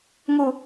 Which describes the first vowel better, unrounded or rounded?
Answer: rounded